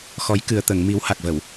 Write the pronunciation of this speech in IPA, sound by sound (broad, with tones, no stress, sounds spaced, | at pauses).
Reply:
x ɔ˨˩˦ j k ɨ˨˩ ə̯ t̪ ə˨˩˨ ŋ m i˨˩˦ w h a˨˩ k̚ v ə˨˩˨ w